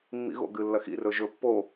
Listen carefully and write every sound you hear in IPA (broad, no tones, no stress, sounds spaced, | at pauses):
mː ḭ ɣ o̰ ɡ ɨ lː ɐ x ḭ r ɵ ʒ ɵ pː o